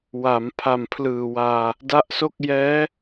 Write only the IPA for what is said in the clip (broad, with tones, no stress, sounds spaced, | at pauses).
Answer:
w a˩˦ m pʰ a˨˩ m pʰ l ɯː˨˩ w aː˧ | d a˦˥ ʔ s o˥˩ k̚ j ɛː˦˥